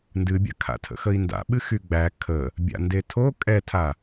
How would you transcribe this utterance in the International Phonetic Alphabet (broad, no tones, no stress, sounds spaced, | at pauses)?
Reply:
n d ɨ bʲ a̰ kʰ a̰ tʰ ə̰ x ə i̯ n d a̰ ɓ ɨ x y ɡ͡b æ kʰ ə | bʲ a̰ n d e tʰ o kʼ ɛ tʰ a